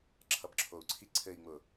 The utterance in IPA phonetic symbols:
ǁʰʌbǁʰou̯ǀʰi ǀʰɘi̯ŋ͡mʊ

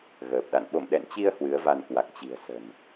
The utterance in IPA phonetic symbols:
ɣəː˨˩p̚ɗa̰˧˨n ɓo̰˧˨mɗɛ̰˧˨nt͡ɕi˧ə̯ hwɨ˨˦ə̯va˧n kwa˨˩k̚ t͡ɕi̤˨˩ə̯ sə̤˨˩n

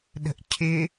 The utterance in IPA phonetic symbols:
ɗə̤ʔcʰɪ

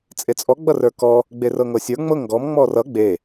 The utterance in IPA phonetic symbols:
t͡sʼet͡sʼɔ ɡ͡bʌrə˞kɔ | ɡ͡berɤŋɤsʲə˞ ŋ͡mɤŋ ɡɔm ŋ͡mɔrʌ ɡ͡be

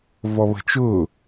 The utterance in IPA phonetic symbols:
vɔβə̤t͡ʃʊː

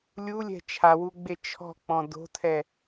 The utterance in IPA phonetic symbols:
lʲulʲɛ̤ t͡ʃʰawuɡ͡be t͡ʃʰɔ̤k͡pɔ̃ do̤tʰɛ

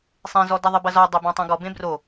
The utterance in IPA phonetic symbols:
sˤẽzɔdɛ ðˤɨbɐzɔ dˤebãtˤũɡɔ bẽbro

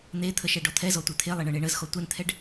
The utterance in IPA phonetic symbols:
n̪et̪ʰə ʃɛɖɔt̪ʰɛzɔ tʷet̪ʰelˠe ɳɤɳeɳəzxɔ tʷɛnt̪ʰɛɖ

